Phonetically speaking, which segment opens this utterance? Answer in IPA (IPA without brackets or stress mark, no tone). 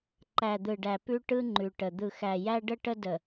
ǃ